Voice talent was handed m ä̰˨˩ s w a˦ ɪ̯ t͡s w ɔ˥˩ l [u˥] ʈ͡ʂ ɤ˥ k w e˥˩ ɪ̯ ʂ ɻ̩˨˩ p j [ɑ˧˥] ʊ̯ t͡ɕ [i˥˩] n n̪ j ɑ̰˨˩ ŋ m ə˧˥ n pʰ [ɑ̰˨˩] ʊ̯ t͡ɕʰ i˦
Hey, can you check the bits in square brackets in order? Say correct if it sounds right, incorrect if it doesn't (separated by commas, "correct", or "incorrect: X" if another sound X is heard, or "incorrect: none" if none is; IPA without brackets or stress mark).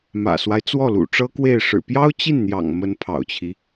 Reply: incorrect: ṵ˨˩, incorrect: ɑ˥, correct, correct